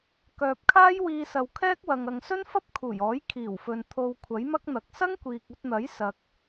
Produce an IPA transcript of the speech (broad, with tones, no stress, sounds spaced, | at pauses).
k œː˨ p̚ kʰ aː˥ j w iː˧ s ɐ˨ w kʰ ɛː˥ k̚ w ɐ˨ ŋ ɐ˨ ŋ s ɵ˥ n f ɐ˥ p̚ kʰ uː˨˩ j ɔː˨˥ j kʰ iː˨˩ w f ɵ˨ n t̪ʰ o˧ w kʷʰ ɐ˨˥ j m ɐ˥ k̚ n̪ ɐ˨˥ k̚ s ɐ˥ ŋ kʷ iː˨ k̚ ɵ˧ t̚ n̪ ɐ˨˥ j s ɐ˧ k̚